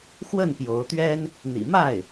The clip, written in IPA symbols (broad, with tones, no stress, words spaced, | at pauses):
xwə˥˩n pjo˧˥ʊ̯t̪ɥɛ˥n | n̪ḭ˨˩ma˥˩ɪ̯